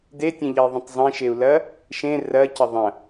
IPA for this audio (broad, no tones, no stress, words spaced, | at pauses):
detʲẽʎɐi̯ðˤə̃tˤ zˤẽʃeu̯lɐ | ʃẽ rɐcɐ ðˤɐ̃